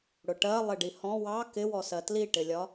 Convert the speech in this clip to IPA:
ɽ ʊ ʈ ɜ lˠ ɪ ɖ i h ɔ̃ w ɑ k ɪ w ɔ s ɜ t l i ʈ ɪ lʲ ɒ

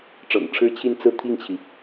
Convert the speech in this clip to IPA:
ʈ͡ʂ ɤ̰˨˩ ŋ ʈ͡ʂʰ ɻ̩˥ t͡ɕʰ i˥˧ n t͡s ɹ̩˥˧ t̪ʰ i˥˩ ŋ t͡ɕʰ i˩

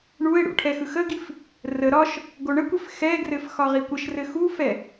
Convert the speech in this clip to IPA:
ɳ u e̯ ɽ ṵ ʈʰ ɛ x ɯ x ə ɡ i f | r ə ɾ ɒ ʃ | ɡ o ɳ ə kʷ ɘ f x ɛ ɡ r ɘ f x ɒ ʁ i kʷ ə ʃ r ɘ x u f ɛ

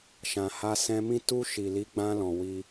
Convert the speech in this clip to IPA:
ʃ ã˨ h a˧ s ɛ̃˧ m ĩ˦ t u˧ ʃ i˨ l i˨˦ ɡ͡b ã˧ l ɔ̃˨ w i˧

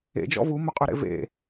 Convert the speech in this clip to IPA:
ḛ d͡ʒ ɔ̰ v u m ɵ qʼ ø ɾ ḛ v ḛ

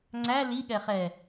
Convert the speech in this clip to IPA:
ŋ͡ǀ æ l i ɠ ɛ χ ɛ

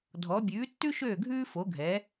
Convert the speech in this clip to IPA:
dʱ ɔ˨˥ bʲ ʉː˨˥ tː ʉ˥ ʃ øː˥˨ ɡʱ ʉː˥ f o˨˥ ɡʱ ɛː˨˥

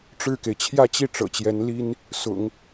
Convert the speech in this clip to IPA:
ʈ͡ʂ ɻ̩˥˩ k e˩ ɪ̯ t͡ɕʰ j ä˥˧ t͡ɕ i˥˩ ʈ͡ʂ ɤ̰˨˩ t͡ɕ j ɛ˧˥ n l i˥ n | s ʊ̰˨˩˦ ŋ

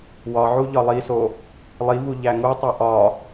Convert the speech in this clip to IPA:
w ɒ ʕ u ʎ ɒ lˠ i s o | lˠ i v u ʎ æ ŋ u tˤ i ʔ ɒ

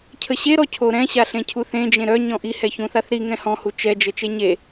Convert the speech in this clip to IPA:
cʰ ə ɕ e ɾ ɔ cʰ o ɾ ɛ̃ ɕ a ɬ ẽ cʰ u θ ẽ d͡ʒ ẽ ɾ œ ɲ ɔ̃ ʔ i h ɛ ç ũ θ a θ ɾ i ŋ ɛ̃ h ɔ̃ h u t͡ʃ ɛ d͡ʒ ə t͡ʃ e ɲ e

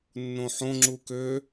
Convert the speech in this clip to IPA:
nː õ ħ õ ŋ͡ǁ u k ø

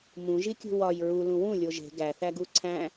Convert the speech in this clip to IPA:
m ũ ʒ i kʲ ṳ w ɒ j ɹ u l ũ w ũ lʲ o ʒ e̤ ɡ æ θ æ ɡ u ǀʰ æ̃

